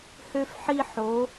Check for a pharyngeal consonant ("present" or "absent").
present